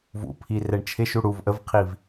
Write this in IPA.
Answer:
v ṵ pʰ i r ɛ ɳ t͡ʃʰ ɪ ʃ u ɽ u v ʔ ə v qʰ i v

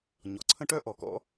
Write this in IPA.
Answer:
ɲ ɔ˩ ǀʰ ə̃˦˥ ʈ œ˦˥ ʔ ɔ˩ k ɔ̰˦˥

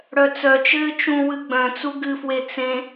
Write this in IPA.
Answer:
ɽ œ t͡s œ t͡ʃ ɘː t͡ʃ ũ w ɨ ɡ͡b œ̃ t͡s u ɡ ɨ f w e t͡s ẽ

